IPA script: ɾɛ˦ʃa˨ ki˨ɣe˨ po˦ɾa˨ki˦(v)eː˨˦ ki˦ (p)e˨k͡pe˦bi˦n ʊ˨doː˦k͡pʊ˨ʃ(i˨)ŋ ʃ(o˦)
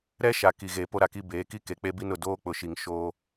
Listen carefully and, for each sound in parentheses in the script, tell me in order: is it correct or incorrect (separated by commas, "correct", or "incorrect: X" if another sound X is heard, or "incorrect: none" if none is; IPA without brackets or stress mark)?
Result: incorrect: b, incorrect: k, correct, incorrect: oː˦